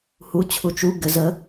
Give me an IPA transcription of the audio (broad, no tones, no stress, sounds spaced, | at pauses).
h u t͡ɕʰ u t͡ʃ u ɡ ɘ z ə